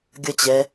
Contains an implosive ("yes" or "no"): no